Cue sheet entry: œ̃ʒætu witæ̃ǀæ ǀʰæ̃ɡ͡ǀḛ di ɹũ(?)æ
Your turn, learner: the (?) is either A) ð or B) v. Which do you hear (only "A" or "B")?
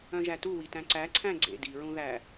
A